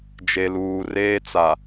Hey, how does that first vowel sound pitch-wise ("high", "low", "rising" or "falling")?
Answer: low